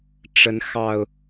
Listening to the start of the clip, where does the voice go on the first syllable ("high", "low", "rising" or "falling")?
rising